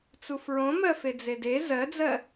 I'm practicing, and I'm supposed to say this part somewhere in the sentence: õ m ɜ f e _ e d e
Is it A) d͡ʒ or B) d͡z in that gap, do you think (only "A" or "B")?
B